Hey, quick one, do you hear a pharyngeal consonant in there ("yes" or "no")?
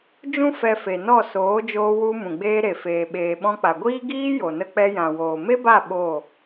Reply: no